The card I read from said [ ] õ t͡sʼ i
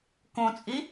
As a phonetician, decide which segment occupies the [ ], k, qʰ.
k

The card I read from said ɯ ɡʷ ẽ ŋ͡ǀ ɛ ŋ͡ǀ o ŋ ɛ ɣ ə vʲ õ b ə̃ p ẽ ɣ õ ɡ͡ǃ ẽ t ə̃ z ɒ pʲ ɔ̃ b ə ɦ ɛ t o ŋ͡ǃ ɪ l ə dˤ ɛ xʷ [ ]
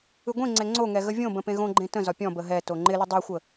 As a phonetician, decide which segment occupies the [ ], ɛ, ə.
ə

